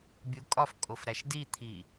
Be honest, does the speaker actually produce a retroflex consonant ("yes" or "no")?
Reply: no